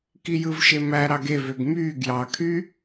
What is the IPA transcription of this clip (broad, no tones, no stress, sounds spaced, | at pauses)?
k i j ɯ v ʃ e m æ ɾ ɑ ɡ e v ø ɡ m yː ɡ j ɑ kʰ y